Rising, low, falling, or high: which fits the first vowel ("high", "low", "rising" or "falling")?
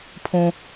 high